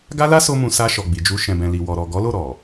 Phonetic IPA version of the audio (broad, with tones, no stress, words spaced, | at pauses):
ɡa˦la˦so˧mũ˨ sa˧ ʃɔ˨ɡ͡bi˨d͡ʒu˧ ʃɛ̃˨bɛ̃˨li˨ wɔ˨ɾɔ˨ ɡɔ˨˦lo˦˨ ɾɔ˨